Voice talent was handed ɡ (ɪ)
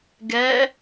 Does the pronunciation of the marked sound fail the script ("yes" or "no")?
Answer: yes